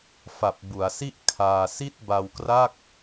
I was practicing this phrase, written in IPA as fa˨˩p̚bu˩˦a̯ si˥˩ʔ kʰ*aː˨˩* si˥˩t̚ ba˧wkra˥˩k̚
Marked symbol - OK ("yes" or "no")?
no